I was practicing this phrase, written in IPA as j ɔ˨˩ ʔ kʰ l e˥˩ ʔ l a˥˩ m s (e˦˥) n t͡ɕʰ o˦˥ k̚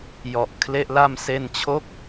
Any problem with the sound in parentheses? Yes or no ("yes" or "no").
yes